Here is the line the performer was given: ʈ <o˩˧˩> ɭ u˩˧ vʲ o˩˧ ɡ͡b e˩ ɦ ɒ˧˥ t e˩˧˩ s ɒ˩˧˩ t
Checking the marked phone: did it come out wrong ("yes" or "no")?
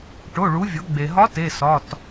no